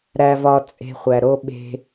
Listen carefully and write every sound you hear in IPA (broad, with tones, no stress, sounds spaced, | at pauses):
ɾ æ˨ v ɒ˨ t͡sʼ e̤˨ χʷ æ˨ ɾ o˦ ɓ e̤˦